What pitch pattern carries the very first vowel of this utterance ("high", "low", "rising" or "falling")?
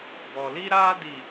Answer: low